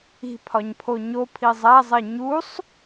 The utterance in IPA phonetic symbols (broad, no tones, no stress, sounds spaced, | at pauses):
i̤ pʰ ɒ ɲ pʰ o ɲ o pʰ i zˤ æ zˤ e ɲ u sˤ